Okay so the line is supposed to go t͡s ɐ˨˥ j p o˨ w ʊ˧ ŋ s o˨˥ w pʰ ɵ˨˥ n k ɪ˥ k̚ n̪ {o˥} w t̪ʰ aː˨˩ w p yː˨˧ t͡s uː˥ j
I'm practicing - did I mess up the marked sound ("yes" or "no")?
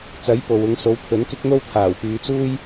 no